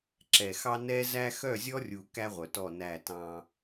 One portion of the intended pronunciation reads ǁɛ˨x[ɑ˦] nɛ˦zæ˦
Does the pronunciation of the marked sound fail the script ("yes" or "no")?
no